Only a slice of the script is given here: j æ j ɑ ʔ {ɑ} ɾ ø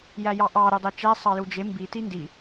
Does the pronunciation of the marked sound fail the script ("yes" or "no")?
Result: no